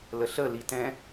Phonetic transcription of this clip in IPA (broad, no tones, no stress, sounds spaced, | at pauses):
l ə ɬ ə l i t ɛ̃